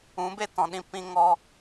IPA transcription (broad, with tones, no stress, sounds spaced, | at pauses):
ũ˨˦ b e˦ t ɔ̃˨ ɗ ĩ˧ p ĩ˧ ŋ ɔ˧